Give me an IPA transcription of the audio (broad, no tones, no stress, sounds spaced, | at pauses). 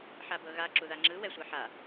ħ a b ɤ ɣ a ǁ u ð a ŋ͡ǁ ɯ w ɛ sʷ a ħ a